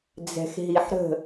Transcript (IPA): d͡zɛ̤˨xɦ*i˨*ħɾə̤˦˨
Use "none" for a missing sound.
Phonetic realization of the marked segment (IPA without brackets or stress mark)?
i˨